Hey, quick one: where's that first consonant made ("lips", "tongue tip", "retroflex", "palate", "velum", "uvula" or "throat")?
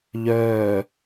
palate